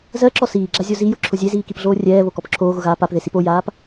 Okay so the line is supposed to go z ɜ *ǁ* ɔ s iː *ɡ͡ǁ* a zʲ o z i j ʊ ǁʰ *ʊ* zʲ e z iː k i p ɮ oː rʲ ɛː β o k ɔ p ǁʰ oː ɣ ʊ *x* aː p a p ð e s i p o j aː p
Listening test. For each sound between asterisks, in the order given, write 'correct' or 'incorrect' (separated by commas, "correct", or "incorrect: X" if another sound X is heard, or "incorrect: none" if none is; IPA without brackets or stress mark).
correct, correct, correct, incorrect: ɣ